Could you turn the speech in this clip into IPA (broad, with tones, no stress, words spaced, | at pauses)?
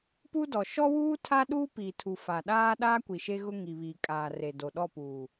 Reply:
pu˦dɔ˨ ʃɔ˦wuː˦ tʰa˦ɗuː˦piː˨tʰu˨ fa˨ɗaː˦ ɗaː˦kʷi˨ʃe˦ ɣʊ˦ŋi˨βiː˨ kʼaː˨re˨ do˨ɗɔ˦˨puː˨